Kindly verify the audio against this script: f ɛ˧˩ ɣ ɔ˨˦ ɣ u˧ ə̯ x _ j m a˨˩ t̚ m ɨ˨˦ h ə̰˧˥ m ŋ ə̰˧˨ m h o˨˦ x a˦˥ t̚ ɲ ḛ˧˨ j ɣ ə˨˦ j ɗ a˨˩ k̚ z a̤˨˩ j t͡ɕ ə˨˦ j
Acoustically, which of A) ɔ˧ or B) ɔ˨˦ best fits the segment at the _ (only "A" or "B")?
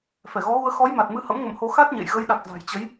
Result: B